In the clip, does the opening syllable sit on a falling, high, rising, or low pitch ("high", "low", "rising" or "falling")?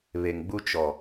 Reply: low